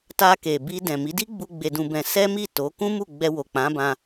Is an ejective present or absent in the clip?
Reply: absent